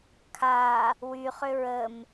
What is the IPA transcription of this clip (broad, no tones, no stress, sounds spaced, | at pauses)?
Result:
kʰ a | w y χ ʏ ɹ ə m